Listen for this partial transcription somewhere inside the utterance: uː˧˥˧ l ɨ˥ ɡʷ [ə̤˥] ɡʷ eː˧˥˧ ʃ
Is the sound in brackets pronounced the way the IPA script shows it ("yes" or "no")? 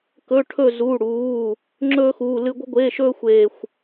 yes